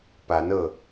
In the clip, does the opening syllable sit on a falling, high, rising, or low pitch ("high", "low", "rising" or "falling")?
rising